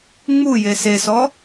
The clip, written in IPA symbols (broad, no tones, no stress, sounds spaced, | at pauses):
ŋ͡m u j e s e s ɔ